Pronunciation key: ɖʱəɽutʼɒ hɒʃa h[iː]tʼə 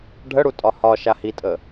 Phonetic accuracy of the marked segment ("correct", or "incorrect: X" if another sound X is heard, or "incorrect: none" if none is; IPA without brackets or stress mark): incorrect: i